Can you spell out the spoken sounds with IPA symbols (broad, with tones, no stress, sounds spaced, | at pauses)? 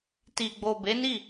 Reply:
t i˨ ɡ͡b o˨ b e˨˦ n i˦˨